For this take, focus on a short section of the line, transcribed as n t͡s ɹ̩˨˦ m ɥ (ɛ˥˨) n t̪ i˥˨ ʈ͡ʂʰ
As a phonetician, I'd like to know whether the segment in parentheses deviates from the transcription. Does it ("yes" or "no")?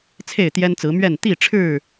no